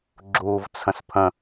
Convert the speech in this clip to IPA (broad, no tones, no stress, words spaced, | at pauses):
ɡ͡ǁuːvt͡sʰə̃spʰə̃